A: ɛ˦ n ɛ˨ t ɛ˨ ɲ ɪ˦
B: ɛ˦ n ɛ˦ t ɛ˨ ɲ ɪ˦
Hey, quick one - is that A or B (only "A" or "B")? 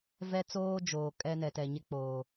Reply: A